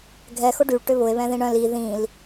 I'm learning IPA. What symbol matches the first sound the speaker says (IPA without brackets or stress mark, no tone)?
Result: ɡʱ